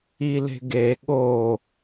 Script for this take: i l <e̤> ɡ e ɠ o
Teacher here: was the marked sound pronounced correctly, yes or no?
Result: yes